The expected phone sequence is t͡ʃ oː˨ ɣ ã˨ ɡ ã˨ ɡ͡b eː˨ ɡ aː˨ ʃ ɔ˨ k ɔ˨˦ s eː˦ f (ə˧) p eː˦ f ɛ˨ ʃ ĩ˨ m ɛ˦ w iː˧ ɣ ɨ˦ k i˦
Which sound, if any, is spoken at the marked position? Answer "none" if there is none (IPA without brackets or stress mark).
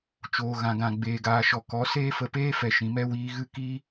ə˧